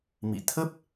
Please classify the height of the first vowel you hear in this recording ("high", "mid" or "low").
high